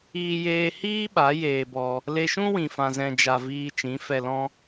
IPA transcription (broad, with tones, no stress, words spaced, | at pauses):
iː˧jeː˧hiː˦ ɓa˨˦jeː˧bɔ˧ | le˧ʃũ˦ wĩ˨fã˨zɛ̃˨d͡ʒa˨ viː˧t͡ʃĩ˨˦fɛ˧lɔ̃˦